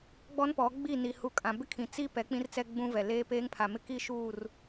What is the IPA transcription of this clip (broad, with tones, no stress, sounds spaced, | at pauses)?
ɡ͡b ɔ˦ n p ɔ˨˦ ɡ͡b i˦˨ n i˨ h u˨˦ kʼ ã˨ b ɪ˦ kʰ ĩ˨ t͡s i˦ p ɛ˨˦ k͡p ĩ˦ r t͡s ɛ˦ ɡ͡b ũ˦ v ɛ˨ l eː˦ p eː˦ ŋ pʰ a˨ m ɪ˦ k i˦ ʃ uː˦˨ r